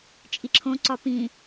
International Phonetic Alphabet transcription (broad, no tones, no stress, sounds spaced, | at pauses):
t͡ʃʼ i ǁʰ õ ǀ ɒ p ĩ